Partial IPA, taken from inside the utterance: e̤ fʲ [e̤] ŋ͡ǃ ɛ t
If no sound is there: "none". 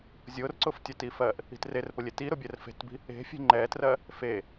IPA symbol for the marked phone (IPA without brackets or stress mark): e̤